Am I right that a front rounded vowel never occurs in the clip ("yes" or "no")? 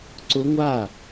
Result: yes